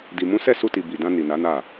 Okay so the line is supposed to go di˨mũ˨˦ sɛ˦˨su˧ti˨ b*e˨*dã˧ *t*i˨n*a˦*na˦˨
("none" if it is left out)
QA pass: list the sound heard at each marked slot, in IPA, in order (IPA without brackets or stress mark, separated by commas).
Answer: i˨, n, a˨˦